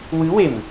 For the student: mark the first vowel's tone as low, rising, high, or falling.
rising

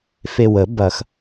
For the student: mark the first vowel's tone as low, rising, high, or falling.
low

